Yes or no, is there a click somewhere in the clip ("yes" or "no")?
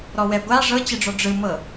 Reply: no